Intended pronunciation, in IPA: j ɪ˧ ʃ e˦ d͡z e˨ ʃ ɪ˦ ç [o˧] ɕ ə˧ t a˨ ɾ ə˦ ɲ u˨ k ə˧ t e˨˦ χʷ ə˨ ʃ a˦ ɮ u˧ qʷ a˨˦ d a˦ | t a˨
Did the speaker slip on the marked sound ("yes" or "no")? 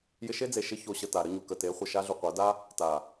no